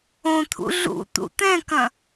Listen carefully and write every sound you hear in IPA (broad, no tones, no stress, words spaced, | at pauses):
õt̪ʰṵ ɮṵ t̪ṵt̪ɛ̃kɐ̃